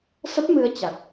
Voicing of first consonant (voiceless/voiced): voiceless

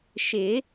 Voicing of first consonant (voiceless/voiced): voiceless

